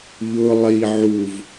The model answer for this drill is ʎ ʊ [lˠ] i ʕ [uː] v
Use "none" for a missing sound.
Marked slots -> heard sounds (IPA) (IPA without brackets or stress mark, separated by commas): lˠ, u